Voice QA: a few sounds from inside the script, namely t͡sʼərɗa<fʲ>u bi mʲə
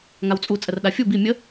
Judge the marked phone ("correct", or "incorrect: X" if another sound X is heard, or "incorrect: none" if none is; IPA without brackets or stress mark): correct